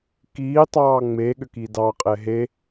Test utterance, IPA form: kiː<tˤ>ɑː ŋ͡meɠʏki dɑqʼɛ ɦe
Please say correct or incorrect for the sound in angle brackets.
correct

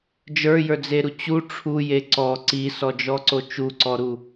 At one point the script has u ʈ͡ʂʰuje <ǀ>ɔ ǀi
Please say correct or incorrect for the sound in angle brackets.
correct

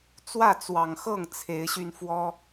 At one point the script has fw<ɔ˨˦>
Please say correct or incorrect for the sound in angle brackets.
incorrect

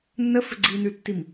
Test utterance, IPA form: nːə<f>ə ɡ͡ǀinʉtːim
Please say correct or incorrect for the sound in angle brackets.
correct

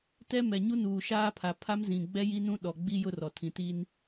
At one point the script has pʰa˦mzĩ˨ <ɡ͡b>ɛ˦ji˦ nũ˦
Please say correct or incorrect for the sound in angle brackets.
correct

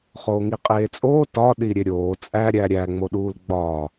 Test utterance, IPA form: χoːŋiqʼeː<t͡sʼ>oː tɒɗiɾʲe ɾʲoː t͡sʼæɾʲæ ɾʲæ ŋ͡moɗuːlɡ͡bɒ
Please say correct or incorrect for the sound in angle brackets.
correct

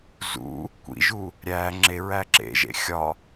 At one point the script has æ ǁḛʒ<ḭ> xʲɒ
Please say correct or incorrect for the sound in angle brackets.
incorrect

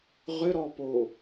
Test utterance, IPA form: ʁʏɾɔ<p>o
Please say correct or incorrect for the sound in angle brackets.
correct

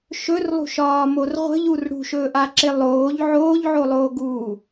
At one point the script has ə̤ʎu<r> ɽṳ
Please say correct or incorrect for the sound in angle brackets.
correct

